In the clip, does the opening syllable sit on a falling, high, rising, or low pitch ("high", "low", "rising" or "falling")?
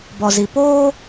low